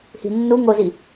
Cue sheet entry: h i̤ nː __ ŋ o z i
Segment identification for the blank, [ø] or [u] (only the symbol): u